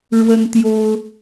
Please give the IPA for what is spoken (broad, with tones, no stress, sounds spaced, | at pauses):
ɻ w ə˥ n t̪ j o˥ ʊ̯